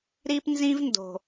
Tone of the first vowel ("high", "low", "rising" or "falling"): high